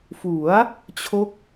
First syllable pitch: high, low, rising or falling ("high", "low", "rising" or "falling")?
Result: rising